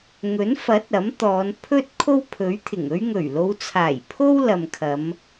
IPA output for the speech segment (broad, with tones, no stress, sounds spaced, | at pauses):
ŋ ɵ˨˥ n f ɐ˨˥ t̚ ɐ˨˥ m t̪ ɔː˨˧ n pʰ ɵ˥ t̚ kʰ o˥ w pʰ ɵ˨˥ ɥ t̪ʰ ɪ˨˩ ŋ ɵ˥ ɥ ŋ ɵ˨˩ ɥ l o˨˧ w t͡sʰ aː˨˩ j pʰ o˥ w l ɐ˨ m kʰ ɐ˨˧ m